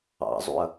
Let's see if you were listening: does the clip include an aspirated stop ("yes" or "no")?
no